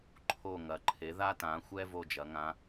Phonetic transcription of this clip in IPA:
ǃʰo˥˩ ŋɐ˩˥ǃʰe˩˥ ða˥tã˩˥xʷɛ˥ vo˥˩d͡ʒɐ˩˥ŋã˧˥

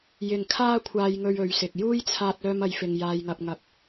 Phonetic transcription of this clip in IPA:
jɪ˨ŋkʰaː˥kʷʰaː˧jŋɵ˧ɥ ɵ˨˧ɥsɪ˨k̚ juː˥jt͡sʰaː˧t̚œː˧mɐ˨˧j fɪ˧ŋ jaː˧jŋɐ˧p̚ŋɐ˧p̚

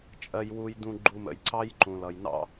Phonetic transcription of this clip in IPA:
t͡ʃʼɜ˨jwu˨j dũ˨ɡ͡ǃu˨mə̰˩jǀɑ˦j ǃũ˩lʌ˩jnɑ̰˦

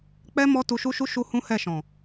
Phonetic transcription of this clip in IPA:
k͡pɛ˦ mɔ˦ tu˧ʃu˦ʃu˦ ʃu˦hũ˦hɛ˦˨ʃɔ̃˨

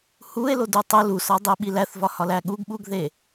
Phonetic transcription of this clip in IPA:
hue̯lo dutˤo lusɒdˤi ɓilæθvɒhɒl æɠuɡ ɓuɡðe

